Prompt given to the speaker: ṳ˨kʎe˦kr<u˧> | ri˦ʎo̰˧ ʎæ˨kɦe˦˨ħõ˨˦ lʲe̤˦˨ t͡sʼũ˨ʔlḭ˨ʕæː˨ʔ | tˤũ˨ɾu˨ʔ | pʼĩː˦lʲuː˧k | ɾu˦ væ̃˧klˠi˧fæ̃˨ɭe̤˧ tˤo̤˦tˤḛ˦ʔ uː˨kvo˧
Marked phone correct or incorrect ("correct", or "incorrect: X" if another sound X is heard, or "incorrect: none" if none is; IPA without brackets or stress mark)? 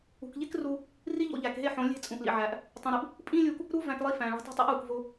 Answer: correct